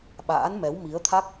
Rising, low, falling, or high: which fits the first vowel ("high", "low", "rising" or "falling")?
rising